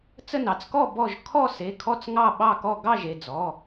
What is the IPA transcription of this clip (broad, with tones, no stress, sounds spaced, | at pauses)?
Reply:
t͡s ə˥˨ n ɑ˩˧˩ t͡s k ɔ˥˨ b ɔ˥˨ ʒ kʰ ɔ˥˨ s e˩˧˩ kʰ ɔ˥˨ t͡s ŋ ɑ˥˨ ɓ ɑ˥˨ k ɔ˥˨ ɡ ɑ˥˨ ʒ e˩˧˩ d͡z ɔ˩˧˩